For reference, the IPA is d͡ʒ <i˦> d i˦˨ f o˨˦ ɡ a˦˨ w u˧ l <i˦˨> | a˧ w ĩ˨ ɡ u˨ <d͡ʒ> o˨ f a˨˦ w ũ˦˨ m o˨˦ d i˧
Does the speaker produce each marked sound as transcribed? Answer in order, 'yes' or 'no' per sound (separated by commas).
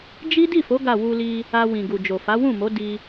yes, no, yes